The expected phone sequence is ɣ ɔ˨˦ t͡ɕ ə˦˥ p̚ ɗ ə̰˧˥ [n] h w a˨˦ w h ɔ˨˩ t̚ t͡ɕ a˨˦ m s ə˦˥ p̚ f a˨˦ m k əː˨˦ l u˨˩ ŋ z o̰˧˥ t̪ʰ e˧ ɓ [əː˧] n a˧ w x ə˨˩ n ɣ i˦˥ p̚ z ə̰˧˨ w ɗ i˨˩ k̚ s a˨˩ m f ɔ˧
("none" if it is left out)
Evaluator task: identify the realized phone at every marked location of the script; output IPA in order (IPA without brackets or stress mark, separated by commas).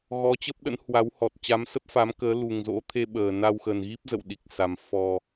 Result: n, əː˨˩